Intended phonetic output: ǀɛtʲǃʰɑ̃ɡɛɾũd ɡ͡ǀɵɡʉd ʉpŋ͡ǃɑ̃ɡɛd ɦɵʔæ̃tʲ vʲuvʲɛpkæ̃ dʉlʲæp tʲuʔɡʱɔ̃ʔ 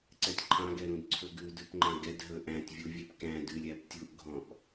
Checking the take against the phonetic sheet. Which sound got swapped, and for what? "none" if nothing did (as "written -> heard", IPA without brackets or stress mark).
ɡ͡ǀ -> ǀʰ